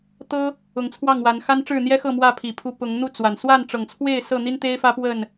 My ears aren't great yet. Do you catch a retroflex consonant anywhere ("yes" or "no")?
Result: yes